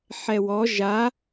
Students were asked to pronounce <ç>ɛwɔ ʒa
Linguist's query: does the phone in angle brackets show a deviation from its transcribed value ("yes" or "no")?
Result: yes